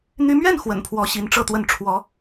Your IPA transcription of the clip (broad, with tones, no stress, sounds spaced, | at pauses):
n̪ y˧˥ m ɥ ɛ˥˩ n x w ə̰˨˩ n pʰ w ɔ˧˥ ɕ i˧˥ n ʈ͡ʂ ɤ˥˧ t̪ w ə˥˩ n ʈ͡ʂʰ w ɔ˧˥